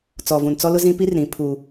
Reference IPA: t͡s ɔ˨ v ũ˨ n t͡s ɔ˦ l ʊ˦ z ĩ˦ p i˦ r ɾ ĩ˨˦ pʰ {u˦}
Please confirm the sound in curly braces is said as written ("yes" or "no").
yes